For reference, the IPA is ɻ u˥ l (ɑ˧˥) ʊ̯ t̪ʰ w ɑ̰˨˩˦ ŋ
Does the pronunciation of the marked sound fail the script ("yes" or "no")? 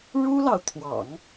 yes